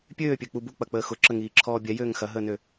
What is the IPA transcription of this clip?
pʲøːpʲøk͡pu buk͡pɐk͡pəː xʊǁəŋiːǁʰɔː bʲɛjøːŋ xɐɦəːnø

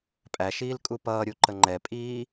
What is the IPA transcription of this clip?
pʼæʃiːl kʼupʌːɾʲu ǃəŋ͡ǃɛpʼiː

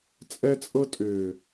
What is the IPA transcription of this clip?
t͡sʼɛ˧t͡sʼɤ˧tʼʏː˨

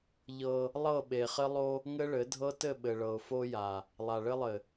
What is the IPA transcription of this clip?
ʎɤ˦ | lˠɤ˦˨ɓe˨χɘ˦ lˠo˦ | ŋɘ˦ɭɘ˨˦ dʱɤ˦tɘ˦˨ɓɘ˨ ɭɤ˨ʊ̯fo˦ja˨ | lˠa˨ɭɘ˦lˠɘ˨

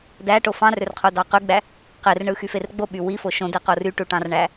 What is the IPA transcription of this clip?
dæʈo fɑ̃rørqʰodɑ qyɡ͡bæ | qerɳɯxyfer ɡ͡boɓy wifo ʃõdeqo ryʈuʈɑ̃rɳæ

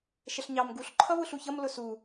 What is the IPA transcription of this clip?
ʃəɬɲɑm ɡuɬ ǃʰʌβʊɬuçʌm lʊsu

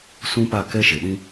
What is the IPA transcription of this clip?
sũ˦pa˦˨ kɛ˦ ʃe˨ɗĩ˦

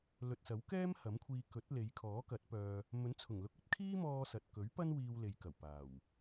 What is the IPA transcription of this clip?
lɵ˨t̚sɐ˨˥wkɛː˥m hɐ˨˥mkʷʰiː˧ kɵ˨˥t̚le˨˧j kʰɔː˨˥kɐ˨˥t̚pœː˧ | mɵ˨˥nt͡sʰʊ˨˩ŋ lʊ˧k̚ɵ˥t̚kʰiː˥mɔː˧ sɐ˨t̚kɵ˨˥ɥpɐ˥n wiː˧wle˨jkɐ˨˩w paː˨˩w

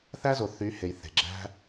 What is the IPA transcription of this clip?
θæ˦zo˨ θy˨˦he˨j θe̤˨ɡ͡ǁæ̤˦

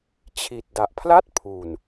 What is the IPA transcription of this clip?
t͡ɕʰi˨˩t̚da˨˩ʔ pʰla˥˩t̚ pʰu˨˩n

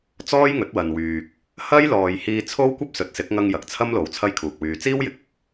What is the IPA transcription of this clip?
t͡sɔː˥jŋɵ˨˥t̚wɐ˨nwyː˨k̚ | hɐ˥jlɔː˨j hiː˧t͡sʰo˥wkʷɐ˥p̚ sɵ˨˥t̚sɪ˨˥k̚ ŋɐ˧ŋ jɐ˨k̚t͡sʰɐ˥mlo˨˧w t͡sʰɐ˥jkʰuː˨k̚wyː˧ t͡siː˥wjɪ˨k̚ɪ˧k̚

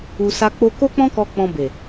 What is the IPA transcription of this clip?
u˧sa˦ k͡po˧ko˦k͡pɔ̃˦kɔ˧ k͡pɔ̃˧be˨

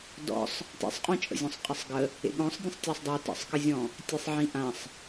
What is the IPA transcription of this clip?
dɔ̰sˤ | tḛsˤqʼõt͡ʃʼə̰zʲɔ̃sˤ qʼəsˤɡə | ḛɠɔ̃sˤdʲə̃sˤ tʲasˤdˤɵ tə̰sˤkəzʲɔ̃ | tʲesˤʕĩʔãsˤ

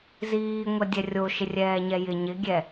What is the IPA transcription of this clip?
ziːŋʷɛdʲɛ rʲoʃɪrʲɛːɲɛ jɪ ɲɪɡʲɛ

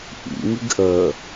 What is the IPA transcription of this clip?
ʔḭŋiɡ ʔə

